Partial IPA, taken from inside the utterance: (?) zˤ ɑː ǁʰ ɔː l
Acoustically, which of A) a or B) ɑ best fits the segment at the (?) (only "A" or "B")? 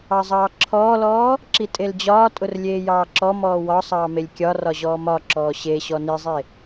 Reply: B